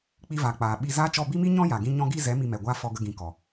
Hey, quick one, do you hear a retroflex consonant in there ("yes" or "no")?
no